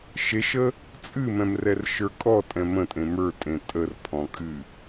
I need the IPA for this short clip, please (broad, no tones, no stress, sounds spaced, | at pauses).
ʃ e ʃ ə | t͡sʼ ɨ m ɛ̃ m r ɛ r ʃ ə˞ kʼ ɔ tʼ ɛ̃ m ə̃ tʼ ẽ m ə˞ tʼ ẽ tʼ ə r pʰ ɔ̃ kʼ ɨ